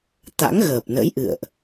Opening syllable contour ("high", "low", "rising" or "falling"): rising